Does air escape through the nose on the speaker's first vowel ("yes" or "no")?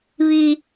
no